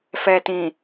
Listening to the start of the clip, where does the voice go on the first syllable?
low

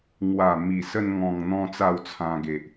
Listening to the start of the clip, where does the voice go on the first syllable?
low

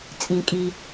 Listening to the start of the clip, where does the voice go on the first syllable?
low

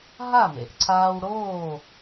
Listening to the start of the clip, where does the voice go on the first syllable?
falling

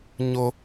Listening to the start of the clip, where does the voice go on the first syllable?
high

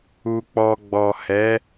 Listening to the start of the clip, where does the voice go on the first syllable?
low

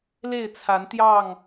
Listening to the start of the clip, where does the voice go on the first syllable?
falling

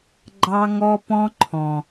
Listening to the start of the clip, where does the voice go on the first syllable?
high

